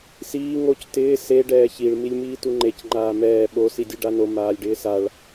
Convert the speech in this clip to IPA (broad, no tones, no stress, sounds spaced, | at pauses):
s iː ŋ o c t ɪː s e ɖ ɛː ç i ɭ m i lʲ m iː t u ŋ͡ǃ e c ŋ͡ǃ aː m ɛː ɓ o s i dʲ u ɖ a n o m aː lʲ ɖ ɪː s a ɭ